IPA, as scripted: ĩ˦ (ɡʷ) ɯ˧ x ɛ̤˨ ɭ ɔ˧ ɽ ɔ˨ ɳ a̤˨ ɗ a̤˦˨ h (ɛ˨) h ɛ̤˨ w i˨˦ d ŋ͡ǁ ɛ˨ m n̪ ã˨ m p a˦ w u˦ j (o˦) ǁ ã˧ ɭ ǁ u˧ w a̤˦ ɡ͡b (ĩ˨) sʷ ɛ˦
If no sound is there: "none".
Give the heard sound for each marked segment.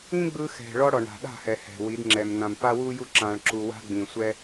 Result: ɡ͡b, ɛ˨, u˦, ĩ˨

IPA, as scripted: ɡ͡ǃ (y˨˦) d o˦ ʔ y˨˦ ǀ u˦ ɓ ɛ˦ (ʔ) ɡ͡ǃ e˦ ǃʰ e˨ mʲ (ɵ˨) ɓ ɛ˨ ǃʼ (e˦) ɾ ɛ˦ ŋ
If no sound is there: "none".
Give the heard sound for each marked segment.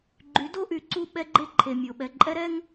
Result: y˨˦, none, o˨, ɛ˦

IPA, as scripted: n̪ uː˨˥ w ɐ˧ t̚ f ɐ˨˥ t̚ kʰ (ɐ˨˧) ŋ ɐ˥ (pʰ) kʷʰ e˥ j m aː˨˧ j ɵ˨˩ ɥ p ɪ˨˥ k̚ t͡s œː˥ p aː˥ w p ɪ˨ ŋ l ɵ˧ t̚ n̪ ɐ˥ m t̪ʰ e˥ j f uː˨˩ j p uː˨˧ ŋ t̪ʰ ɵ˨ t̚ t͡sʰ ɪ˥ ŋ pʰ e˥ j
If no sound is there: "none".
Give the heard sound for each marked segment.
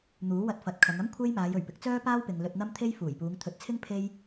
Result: ɐ˨˧, m

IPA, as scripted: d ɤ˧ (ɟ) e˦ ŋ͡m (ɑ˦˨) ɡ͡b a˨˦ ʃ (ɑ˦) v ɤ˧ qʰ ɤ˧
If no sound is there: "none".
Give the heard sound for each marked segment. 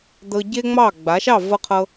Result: ɟ, ɑ˦˨, ɑ˦˨

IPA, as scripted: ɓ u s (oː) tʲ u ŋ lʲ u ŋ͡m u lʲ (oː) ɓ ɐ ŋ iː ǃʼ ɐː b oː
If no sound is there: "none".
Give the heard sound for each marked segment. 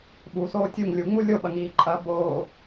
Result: oː, o

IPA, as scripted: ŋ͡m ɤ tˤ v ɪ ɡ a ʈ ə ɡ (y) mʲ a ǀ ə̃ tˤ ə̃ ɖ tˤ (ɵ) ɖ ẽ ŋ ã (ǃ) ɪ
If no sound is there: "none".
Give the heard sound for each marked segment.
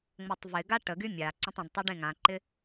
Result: y, ɤ, ǃ

